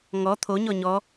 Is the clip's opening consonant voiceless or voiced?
voiced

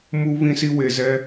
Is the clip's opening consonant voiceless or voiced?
voiced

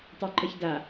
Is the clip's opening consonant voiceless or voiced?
voiceless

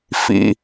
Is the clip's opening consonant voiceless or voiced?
voiceless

